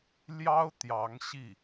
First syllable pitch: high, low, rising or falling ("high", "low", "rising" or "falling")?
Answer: high